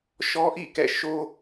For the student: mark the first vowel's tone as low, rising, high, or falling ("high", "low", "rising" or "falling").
high